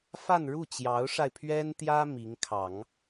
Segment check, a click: absent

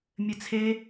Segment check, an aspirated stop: present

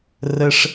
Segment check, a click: absent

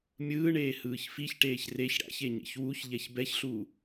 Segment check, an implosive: absent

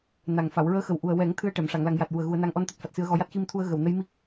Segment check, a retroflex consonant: present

